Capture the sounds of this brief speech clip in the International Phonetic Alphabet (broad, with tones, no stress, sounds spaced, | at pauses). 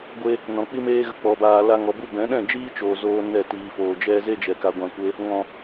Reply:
ɡʷ e˧ | n ɔ̃˨ k͡p i˦ m eː˦ ɣ ə˧ k͡p ɔ˨ b aː˨ l a˧ ŋ ɔ˨ b u˦ b ɛ̃˨˦ ɗ ɛ̃˦˨ d͡ʒ iː˦ t͡ʃ oː˨ z oː˦ n ɛ˦˨ t iː˨ f oː˨ d͡ʒ ɛ˦ z e˦ d͡ʒ ɛ˨ k a˧ ɡʷ ã˧ kʷ e˦ | ŋ ɔ̃˨